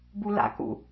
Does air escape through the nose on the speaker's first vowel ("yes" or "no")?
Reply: no